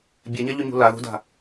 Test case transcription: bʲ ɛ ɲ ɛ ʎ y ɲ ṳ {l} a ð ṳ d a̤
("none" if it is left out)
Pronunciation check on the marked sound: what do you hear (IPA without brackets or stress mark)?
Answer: l